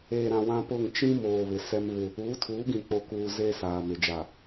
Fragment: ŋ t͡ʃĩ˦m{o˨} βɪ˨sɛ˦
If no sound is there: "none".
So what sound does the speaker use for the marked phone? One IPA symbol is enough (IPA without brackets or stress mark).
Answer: oː˨